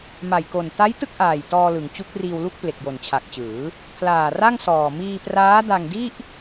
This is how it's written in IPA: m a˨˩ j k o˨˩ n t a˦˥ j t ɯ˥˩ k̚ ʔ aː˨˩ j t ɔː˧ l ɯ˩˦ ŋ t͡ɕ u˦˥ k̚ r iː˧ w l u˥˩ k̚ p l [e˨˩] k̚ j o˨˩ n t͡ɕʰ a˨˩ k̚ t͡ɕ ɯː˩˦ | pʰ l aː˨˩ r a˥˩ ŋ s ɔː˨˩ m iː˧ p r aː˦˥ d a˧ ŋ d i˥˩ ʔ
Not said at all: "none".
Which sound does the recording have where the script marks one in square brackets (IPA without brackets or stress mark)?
e˨˩